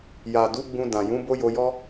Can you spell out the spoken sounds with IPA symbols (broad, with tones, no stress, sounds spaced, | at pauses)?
j a˨ d u˨˦ ɡ͡b ũ˧ d ã˨ j ũ˨˦ b o˦ j o˧ j ɔ˦